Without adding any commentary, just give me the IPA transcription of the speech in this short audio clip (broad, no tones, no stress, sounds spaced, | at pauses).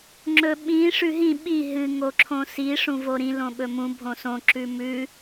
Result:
ŋ͡ǁ ɵ ɓ ĩ ʂ ʉ ɦ ĩ ɓ i ɦ ɨ ŋ o ǁʰ õ s i ʂ ũ v o ɾ ĩ l õ ɓ ɵ m ũ bʱ õ s õ ǁ ʉ m ʉ